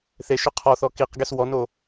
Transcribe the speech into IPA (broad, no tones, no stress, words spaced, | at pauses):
θe ʃʏqʰɔθɔ kiqɡes wɔno